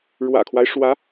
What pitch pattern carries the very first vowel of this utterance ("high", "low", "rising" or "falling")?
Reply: low